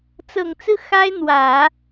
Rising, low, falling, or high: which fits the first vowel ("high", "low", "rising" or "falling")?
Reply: low